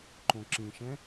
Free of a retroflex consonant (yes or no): yes